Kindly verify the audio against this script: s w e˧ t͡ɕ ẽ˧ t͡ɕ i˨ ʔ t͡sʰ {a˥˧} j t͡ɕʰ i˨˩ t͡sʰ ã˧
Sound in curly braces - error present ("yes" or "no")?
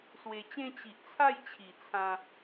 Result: no